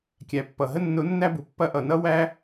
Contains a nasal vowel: no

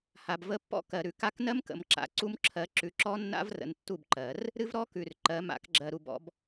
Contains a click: yes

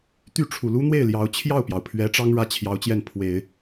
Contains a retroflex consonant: yes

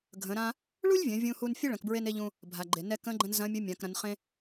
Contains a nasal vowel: yes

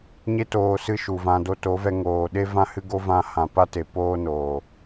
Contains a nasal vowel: yes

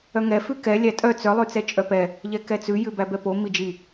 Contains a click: no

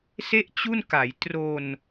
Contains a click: no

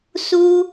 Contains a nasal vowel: no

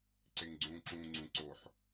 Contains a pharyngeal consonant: yes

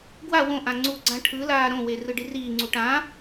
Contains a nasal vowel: yes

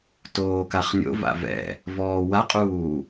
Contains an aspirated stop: no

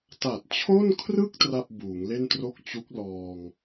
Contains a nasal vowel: no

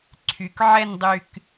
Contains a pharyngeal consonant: yes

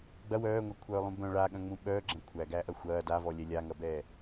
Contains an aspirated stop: yes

